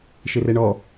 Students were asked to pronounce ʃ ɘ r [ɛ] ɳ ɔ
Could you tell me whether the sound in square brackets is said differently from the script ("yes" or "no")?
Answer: no